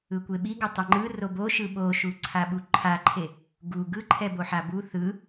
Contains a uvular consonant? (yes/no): no